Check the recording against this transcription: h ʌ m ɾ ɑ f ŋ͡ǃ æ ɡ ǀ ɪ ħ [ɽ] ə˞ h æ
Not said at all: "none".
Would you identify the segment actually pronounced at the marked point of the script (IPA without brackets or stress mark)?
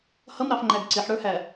ɽ